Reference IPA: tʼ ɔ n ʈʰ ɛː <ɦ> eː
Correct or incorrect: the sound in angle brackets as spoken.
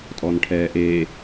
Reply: incorrect: ʔ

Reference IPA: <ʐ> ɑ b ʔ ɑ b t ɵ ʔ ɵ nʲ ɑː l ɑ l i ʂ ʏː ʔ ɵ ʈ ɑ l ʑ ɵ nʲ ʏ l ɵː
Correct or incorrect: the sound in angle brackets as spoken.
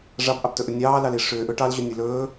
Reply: correct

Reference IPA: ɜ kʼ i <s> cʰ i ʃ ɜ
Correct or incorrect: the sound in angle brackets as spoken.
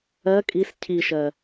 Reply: correct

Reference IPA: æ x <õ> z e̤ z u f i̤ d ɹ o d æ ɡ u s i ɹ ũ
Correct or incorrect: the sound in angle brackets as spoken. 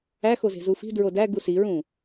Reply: incorrect: o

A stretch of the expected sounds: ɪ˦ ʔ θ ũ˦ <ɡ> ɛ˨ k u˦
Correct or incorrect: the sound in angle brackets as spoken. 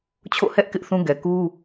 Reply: correct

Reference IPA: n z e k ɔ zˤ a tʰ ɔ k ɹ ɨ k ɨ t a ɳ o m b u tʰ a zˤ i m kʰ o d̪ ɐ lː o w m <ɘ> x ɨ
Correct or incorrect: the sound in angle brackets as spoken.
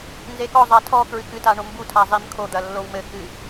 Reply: correct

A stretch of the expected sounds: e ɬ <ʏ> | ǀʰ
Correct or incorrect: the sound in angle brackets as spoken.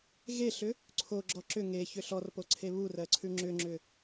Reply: correct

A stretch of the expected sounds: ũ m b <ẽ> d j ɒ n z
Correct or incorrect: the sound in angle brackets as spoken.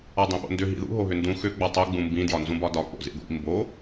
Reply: incorrect: ĩ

